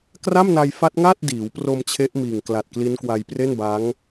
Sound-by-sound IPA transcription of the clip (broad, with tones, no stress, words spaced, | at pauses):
kra˥˩mna˧jfa˦˥t̚ŋaː˥˩t̚ diː˩˦wpro˧m t͡ɕʰe˦˥ʔmiː˨˩ŋ kla˨˩t̚ kli˦˥nkwa˧jpre˥˩nba˦˥ŋ